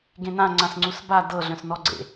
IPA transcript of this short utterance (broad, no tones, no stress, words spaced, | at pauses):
ɡẽnãŋ͡ǀãs ŋ͡ǀusba dɤɮœ̃s nɔɡ͡ǀḛ